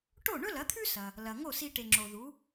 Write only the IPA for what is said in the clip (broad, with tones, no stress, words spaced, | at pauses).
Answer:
ʈo˥˩ɳɵ˥lɐ˩˥t̪ʰʉ˥ sɐ˩ | lɐ˩ŋo˥˩si˧ ʈe˩ŋ͡ǁo˩ ðu˩˥